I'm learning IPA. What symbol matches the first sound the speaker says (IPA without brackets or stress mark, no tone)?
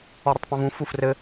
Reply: ɔ